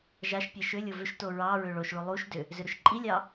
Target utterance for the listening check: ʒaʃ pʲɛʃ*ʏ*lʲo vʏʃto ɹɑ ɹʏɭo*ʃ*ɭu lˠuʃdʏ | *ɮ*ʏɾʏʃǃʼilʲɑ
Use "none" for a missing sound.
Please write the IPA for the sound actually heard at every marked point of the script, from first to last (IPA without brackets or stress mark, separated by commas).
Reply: ʏ, ʃ, z